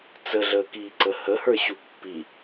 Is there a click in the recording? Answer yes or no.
yes